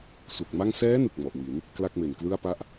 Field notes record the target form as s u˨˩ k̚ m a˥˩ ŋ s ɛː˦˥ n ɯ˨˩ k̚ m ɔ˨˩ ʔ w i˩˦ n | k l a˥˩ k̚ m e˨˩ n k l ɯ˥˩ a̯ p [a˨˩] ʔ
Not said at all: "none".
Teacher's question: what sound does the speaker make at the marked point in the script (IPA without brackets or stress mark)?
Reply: a˥˩